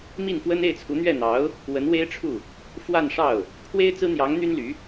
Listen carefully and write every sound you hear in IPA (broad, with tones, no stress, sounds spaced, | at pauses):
m i˥˩ n f w ə˥ n e˥˩ ɪ̯ t͡sʰ u˧˥ n̪ ɥ ɛ˥˩ n̪ ɑ˧˥ ʊ̯ | w ə˧˥ n w e˥ ɪ̯ ʈ͡ʂʰ u˥˩ | f w a˥˧ n ʂ ɑ˥˩ ʊ̯ | pʰ w e˥ ɪ̯ t͡s ɹ̩˥ n̪ j ɑ˧˥ ŋ n̪ y˥ n l y˧˥